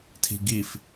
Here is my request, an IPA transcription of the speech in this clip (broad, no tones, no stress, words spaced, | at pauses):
tʰi̤ɡif